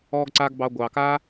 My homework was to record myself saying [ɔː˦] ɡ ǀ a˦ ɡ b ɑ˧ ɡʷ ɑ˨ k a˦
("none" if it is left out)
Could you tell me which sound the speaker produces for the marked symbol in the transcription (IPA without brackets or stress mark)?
ɔː˦